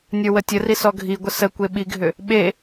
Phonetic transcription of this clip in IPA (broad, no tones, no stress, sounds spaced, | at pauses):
nʲ ə˞ w ə tʲ ə r i s ɔ ɡʱ i ɡʷ ə s ə kʷ e ɓ i ɡʱ ʏ | ɓ e